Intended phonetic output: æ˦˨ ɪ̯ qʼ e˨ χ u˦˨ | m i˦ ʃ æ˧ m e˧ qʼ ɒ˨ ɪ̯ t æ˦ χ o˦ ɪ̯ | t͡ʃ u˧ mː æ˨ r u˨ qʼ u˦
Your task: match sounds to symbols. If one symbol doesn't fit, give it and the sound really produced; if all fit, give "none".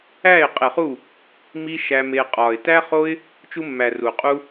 none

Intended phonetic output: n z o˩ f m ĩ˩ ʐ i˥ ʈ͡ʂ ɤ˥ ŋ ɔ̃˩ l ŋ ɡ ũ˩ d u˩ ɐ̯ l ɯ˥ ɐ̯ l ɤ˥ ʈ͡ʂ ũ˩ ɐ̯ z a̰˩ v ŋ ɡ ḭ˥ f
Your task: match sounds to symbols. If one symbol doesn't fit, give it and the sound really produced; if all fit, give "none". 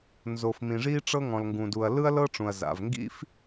none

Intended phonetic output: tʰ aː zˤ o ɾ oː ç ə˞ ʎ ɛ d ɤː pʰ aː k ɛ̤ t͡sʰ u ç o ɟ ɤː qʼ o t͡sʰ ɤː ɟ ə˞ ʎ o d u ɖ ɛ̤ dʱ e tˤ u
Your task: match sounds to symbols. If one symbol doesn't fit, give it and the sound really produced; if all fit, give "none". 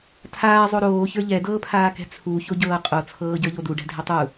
none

